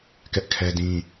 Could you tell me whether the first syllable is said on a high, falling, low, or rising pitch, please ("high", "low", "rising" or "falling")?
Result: high